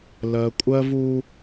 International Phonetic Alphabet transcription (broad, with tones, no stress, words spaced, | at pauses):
lɜ˨kʷʼɜ˦vu˦